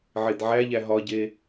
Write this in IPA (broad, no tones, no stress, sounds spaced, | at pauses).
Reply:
ʕ e d ʕ æ ʎ æ ɦ ɒ ɟ e